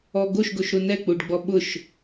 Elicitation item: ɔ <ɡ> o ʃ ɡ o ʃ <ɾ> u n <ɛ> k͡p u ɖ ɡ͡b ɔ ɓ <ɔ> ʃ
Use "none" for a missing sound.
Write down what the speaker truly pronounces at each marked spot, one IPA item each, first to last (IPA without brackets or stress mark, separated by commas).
ɡ, ɾ, ɛ, ʊ